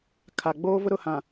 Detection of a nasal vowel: present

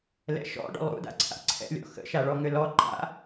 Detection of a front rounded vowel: present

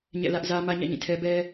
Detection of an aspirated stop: present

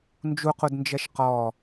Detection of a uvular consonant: present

